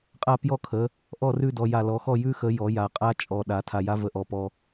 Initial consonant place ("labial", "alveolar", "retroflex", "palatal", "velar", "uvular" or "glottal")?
uvular